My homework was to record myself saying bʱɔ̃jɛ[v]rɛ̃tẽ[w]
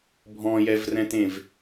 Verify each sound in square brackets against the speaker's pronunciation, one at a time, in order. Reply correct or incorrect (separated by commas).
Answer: correct, incorrect